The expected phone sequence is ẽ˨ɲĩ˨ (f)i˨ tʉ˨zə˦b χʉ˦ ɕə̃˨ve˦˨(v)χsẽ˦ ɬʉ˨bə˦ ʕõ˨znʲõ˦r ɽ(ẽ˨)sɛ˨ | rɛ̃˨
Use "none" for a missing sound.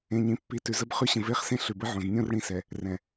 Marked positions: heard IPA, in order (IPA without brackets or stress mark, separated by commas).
pː, none, ĩ˨